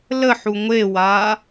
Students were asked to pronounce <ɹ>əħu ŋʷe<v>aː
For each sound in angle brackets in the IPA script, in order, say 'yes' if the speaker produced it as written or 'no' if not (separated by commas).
no, no